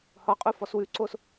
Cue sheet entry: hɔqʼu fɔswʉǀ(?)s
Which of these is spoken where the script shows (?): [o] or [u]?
o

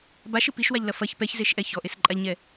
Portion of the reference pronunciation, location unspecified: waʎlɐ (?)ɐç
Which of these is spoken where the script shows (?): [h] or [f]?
f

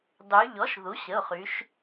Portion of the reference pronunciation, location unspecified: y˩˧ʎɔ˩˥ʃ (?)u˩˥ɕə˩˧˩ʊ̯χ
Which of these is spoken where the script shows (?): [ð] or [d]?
ð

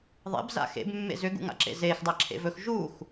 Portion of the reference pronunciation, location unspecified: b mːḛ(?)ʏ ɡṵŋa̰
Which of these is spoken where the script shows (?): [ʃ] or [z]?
z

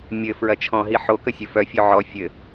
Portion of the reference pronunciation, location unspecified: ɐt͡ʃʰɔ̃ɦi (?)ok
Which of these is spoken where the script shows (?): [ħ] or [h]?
ħ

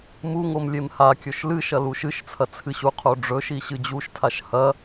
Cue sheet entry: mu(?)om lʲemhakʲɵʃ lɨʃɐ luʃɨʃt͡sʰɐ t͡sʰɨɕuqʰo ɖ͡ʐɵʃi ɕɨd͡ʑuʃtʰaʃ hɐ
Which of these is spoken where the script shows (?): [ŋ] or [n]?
ŋ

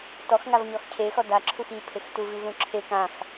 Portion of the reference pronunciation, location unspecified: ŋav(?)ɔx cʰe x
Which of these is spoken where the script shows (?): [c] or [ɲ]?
ɲ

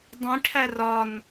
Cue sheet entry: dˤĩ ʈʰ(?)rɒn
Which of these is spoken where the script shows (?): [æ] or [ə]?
æ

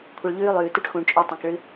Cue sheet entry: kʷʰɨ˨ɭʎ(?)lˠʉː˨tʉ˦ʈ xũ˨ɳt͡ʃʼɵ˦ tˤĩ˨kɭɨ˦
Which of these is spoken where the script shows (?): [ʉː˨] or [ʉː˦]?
ʉː˦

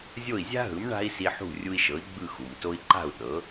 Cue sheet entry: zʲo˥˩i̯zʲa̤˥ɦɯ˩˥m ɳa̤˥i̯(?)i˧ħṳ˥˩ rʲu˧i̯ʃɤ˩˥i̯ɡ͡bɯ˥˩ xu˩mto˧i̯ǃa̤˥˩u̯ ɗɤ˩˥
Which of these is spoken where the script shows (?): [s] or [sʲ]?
s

